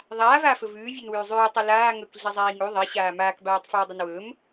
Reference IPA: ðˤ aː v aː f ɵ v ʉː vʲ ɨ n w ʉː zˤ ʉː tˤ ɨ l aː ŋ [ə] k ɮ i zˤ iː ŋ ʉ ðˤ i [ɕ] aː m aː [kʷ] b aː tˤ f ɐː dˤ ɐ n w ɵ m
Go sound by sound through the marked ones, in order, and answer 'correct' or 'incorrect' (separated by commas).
incorrect, correct, incorrect